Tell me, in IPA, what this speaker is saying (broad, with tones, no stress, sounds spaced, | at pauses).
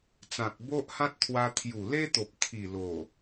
t͡s ã˨ k̚ b o˦ ʔ h ã˦ t̚ t̪ʰ w a˧ t̪ʰ j u˨˩ l e˦ t̪ o˨ p̚ t̪ʰ i˨˩ l o˨˩